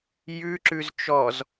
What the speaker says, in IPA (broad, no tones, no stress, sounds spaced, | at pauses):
j ʉ ǁ ʉ z t͡ʃ ɔ z